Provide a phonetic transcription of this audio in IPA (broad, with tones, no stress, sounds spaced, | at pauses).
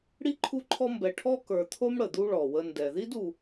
ɽ i˥ ǃʰ u˦ ǃʰ ɔ˦ m b ɛ˨ ʈʰ ɔ˥ k ə˞˨ t̪ʰ o˥ m ɽ ə˩ d̪ u˦ ɭ ɔ˩ w ə˨ n d ɛ˩ ð i˥ d u˨